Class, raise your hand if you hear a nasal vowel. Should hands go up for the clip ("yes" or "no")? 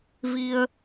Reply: no